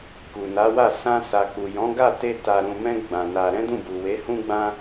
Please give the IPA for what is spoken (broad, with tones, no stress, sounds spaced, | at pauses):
k u˨ n a˨˦ w a˦˨ s ã˧ s a˨ k͡p u˨ j ɔ̃˨˦ ɡ a˦˨ t e˧ t a˨ ɾ ũ˨ m ɛ̃˧ ɡ͡b ã˧ n a˧ ɾ ɛ̃˦ d ũ˦˨ b u˨ w e˨˦ h ũ˧ ɡ͡b ã˧